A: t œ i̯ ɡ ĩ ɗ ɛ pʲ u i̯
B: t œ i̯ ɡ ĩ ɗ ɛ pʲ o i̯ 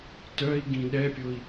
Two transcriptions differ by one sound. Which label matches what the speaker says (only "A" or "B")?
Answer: B